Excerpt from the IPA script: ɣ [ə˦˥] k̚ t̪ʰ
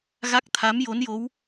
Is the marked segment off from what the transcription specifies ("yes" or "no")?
yes